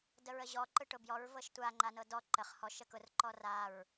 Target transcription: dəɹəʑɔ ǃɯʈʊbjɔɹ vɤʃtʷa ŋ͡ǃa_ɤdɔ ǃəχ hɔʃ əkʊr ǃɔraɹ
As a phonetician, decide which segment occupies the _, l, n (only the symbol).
n